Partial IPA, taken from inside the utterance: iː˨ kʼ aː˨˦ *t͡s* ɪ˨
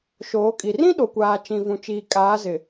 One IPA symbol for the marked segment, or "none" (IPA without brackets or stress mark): z